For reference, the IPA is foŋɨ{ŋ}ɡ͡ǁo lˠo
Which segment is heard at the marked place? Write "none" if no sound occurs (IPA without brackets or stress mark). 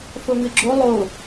none